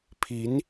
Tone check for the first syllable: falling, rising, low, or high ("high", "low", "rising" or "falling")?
rising